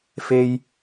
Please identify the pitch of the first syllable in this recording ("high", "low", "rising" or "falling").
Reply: high